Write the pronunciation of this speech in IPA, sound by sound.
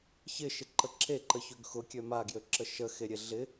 ç ɪ ʃ ɪ ǃ ə ǁ e ǃ ə ç ø ɡ x ʊ kʲ ø m a ɡ j ø ǁ ə ʃ ə x e ɾʲ e ɮ ɪ

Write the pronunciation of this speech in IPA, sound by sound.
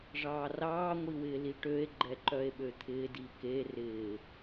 ʐ ɑː r ɑː ŋʷ i w ɪː l i ʈ ø e̯ ɡ͡ǃ ɛ ǃ œ e̯ ɓ ø t̪ʰ ɪː d i k e r ɪː

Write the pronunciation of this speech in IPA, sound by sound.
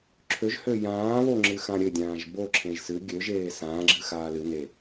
ǁʰ ø ʒ h ø j ãː β o ŋ͡ǁ ɨ x ã ɾʲ ɘ dʲ ãː ʒ b o ǁʰ ẽ ʒ s ɨ ɡʲ ø ʒ eː s ãː ɡ͡ǁ ɨ x aː l ɨ n e

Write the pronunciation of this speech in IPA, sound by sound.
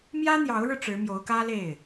m j ä˥ n̪ j ɑ˧˥ ʊ̯ ɻ ɻ̩˧ ʈ͡ʂ ɻ̩˧˥ m j o˧˥ ʊ̯ k ä˥ l e˥˩ ɪ̯

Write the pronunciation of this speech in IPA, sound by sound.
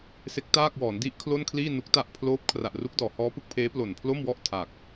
s e˦˥ k̚ t aː˥˩ k̚ w ɔː˩˦ n d i˦˥ ʔ kʰ l o˥˩ n kʰ l iː˥˩ n u˦˥ k̚ t a˥˩ ʔ pʰ l oː˦˥ p̚ kʰ r a˨˩ ʔ r u˦˥ k̚ d ɔː˩˦ h ɔː˦˥ p ɯ˦˥ k̚ pʰ eː˦˥ p l o˨˩ n pʰ l o˥˩ m w ɔ˥˩ ʔ tʰ a˨˩ k̚

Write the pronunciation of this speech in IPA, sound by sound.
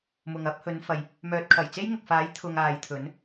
m ʊ˨ ŋ ɐ˨˥ p̚ h ɵ˨˧ n f ɐ˨ j | m œː˨ t̚ kʰ ɐ˨˩ j t͡s e˥ j ŋ ʊ˨ k̚ f aː˨˥ j t̪ʰ ʊ˨ ŋ aː˨ j t̪ʰ ɵ˨˥ n

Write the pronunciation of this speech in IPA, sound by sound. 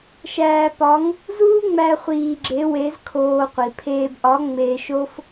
ʃ æː˧ p ɒ˧˥ ŋ | z uː˥ ŋ͡m æ˧ χʷ iː˧ ɡ͡ǁ e˧˥ w e˧˥ z kʰ oː˧ qʷ i˩ pʰ eː˧ b ʔ ɒ˧˥ ŋ͡m eː˧ ʃ o˥ f

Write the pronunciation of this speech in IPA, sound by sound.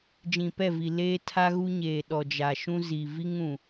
d͡ʒ ĩ˨ p ɛ˦˨ v i˨ l eː˦ tʰ a˦ ɣ u˦ ɲ eː˨ ɗ ɔ˨ d͡ʒ a˨ ʃ ũ˦ z i˨ v i˦ ŋ ũ˨

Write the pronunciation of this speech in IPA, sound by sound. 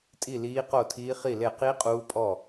tʼ i˥˨ l iː˦˥ q o˥˨ tʰ iː˦˥ χ i˥˨ l e˥˨ q i˦˥ qʼ uː˦˥ pʼ ɔ˥˨

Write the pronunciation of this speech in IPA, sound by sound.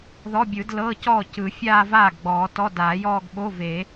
ð ɔ˧˥˧ bʲ ɯ˨˩˦ d l ɤː˧˥˧ c ɔː˥˩ c ɯ˨˩˦ fʲ aː˥˧ v aː˥˩ ɡ ɡ͡b ɔː˨˩˦ t ɔ˧˥˧ d aː˨˩˦ j ɔː˥˧ ɡ ɓ o˧˥˧ v e˨˩˦

